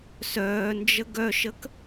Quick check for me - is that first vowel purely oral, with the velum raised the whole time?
yes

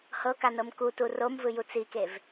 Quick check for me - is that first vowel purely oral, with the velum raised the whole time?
yes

